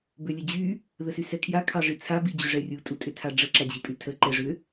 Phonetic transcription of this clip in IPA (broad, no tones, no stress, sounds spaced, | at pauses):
b ʏ lʲ ə d͡ʑ y | ð ə s y s ɛ kʰ j a kʰ ɑ ʐ i t͡sʰ a b i d͡ʑ ʏ ʐ ɛ rʲ u tʼ u tʼ ʏ tʰ a ɖ͡ʐ ə ǁ a d͡ʑ i pʼ y tʰ ə ǃ ɛ ʐ ʏ